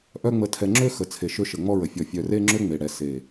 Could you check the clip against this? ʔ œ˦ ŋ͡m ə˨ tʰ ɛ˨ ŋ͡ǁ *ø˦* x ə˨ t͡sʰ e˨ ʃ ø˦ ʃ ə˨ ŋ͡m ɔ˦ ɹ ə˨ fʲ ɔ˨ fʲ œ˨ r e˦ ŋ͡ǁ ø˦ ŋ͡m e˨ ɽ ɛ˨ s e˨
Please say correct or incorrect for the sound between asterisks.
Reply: correct